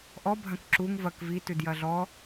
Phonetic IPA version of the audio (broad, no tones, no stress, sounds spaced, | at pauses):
ʔ ɔ bʱ ɐ̃ k ǁ u ŋ v ɐ k v i t ʉ d j ɐ ɮ ɔ